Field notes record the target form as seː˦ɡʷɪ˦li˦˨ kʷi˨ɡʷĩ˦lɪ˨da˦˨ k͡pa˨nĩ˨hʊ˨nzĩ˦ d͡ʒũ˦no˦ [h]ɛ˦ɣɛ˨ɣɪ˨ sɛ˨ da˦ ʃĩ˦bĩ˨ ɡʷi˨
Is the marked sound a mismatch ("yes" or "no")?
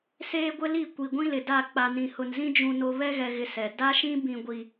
yes